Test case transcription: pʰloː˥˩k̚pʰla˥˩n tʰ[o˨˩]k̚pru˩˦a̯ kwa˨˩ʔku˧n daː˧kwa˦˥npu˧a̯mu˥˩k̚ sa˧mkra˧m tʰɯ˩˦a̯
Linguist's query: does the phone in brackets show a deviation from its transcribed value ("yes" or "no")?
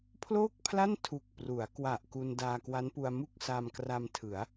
yes